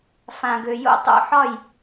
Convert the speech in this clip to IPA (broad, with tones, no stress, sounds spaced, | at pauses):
f ã˨ ɡ ø˨ j o̰˦ tˤ o̰˦ ħ ɒ˦˨ j